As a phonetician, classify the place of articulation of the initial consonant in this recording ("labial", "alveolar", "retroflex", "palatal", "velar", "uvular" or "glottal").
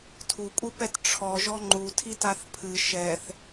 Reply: alveolar